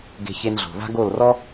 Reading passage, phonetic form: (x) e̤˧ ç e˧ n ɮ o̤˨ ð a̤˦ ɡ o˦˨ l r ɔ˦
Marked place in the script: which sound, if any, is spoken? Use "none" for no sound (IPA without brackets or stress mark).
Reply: ɡ